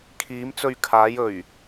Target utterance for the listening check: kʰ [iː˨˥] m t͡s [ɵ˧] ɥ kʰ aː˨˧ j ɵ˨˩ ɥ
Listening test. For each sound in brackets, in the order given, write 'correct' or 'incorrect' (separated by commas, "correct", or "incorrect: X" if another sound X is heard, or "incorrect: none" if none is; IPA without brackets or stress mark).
incorrect: iː˨˧, correct